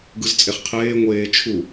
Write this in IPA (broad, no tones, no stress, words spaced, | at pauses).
ɡɯzt͡sʼeχqʰeː ŋʷeː t͡ʃʰu